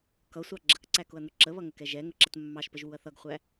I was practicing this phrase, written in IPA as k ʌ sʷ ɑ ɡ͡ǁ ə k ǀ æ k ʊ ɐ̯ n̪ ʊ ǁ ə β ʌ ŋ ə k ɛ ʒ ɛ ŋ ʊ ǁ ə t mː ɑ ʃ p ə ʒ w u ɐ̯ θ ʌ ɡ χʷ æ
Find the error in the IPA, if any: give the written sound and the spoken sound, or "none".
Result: none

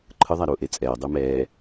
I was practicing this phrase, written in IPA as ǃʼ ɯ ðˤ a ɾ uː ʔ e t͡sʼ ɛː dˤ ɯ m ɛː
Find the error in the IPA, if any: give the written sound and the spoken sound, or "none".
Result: ǃʼ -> ǃʰ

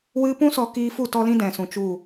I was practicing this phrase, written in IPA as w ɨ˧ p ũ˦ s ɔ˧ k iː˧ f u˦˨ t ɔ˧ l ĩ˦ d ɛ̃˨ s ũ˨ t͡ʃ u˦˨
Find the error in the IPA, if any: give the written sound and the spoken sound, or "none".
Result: none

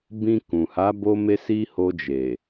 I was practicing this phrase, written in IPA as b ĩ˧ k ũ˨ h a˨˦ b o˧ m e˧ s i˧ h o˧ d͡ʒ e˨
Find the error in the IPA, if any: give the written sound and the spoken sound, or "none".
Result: none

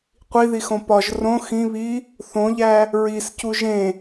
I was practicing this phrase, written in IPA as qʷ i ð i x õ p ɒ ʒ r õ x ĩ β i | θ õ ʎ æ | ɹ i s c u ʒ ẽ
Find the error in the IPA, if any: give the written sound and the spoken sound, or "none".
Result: none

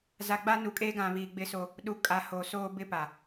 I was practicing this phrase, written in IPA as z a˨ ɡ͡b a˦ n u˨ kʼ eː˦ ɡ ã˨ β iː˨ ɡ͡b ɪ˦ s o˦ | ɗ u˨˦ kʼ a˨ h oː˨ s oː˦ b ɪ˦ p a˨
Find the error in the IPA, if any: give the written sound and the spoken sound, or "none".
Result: none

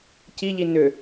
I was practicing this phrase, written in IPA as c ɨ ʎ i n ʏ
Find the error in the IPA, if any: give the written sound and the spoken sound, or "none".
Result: ɨ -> i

